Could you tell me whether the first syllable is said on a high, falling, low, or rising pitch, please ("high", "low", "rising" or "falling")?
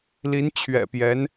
rising